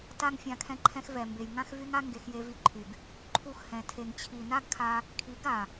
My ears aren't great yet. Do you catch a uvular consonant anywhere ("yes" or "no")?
no